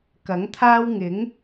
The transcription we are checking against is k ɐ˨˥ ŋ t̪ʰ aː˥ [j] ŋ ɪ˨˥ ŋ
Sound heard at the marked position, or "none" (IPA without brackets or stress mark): w